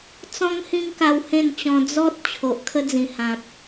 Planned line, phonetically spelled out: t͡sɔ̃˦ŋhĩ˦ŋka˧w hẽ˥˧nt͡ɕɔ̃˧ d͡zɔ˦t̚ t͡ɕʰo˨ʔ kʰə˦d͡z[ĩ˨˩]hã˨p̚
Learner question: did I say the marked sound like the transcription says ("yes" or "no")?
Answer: yes